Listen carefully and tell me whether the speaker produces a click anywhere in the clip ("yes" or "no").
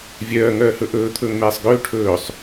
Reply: no